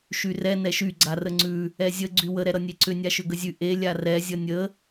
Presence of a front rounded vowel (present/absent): present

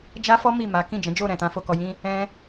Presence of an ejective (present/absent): absent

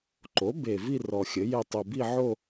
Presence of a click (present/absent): present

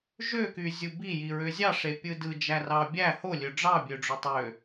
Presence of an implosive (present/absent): absent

